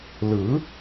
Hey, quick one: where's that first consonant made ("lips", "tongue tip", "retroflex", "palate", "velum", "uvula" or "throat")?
tongue tip